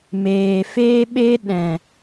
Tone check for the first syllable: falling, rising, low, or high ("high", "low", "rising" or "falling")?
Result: low